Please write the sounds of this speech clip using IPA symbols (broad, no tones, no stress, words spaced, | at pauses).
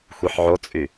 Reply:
xʷiħʕot͡sʼy